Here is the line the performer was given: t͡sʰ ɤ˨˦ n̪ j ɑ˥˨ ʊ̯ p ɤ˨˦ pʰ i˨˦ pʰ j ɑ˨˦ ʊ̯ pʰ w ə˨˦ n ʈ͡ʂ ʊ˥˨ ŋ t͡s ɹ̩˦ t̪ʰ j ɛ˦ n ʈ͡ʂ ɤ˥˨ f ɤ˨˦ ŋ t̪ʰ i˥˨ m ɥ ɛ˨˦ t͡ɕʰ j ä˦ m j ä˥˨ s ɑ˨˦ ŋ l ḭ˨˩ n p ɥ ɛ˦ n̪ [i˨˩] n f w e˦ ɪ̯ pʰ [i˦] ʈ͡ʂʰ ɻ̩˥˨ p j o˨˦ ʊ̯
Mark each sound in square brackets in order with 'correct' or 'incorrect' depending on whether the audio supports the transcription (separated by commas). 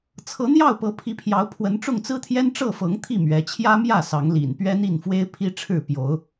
incorrect, correct